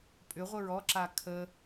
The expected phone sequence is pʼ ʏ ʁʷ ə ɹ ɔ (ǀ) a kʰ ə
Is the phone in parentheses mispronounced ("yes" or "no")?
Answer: yes